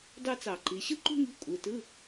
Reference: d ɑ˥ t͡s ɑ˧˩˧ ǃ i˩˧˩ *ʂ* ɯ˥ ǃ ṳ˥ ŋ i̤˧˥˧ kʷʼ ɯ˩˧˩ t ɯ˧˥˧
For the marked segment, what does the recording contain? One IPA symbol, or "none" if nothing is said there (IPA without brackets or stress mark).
ɕ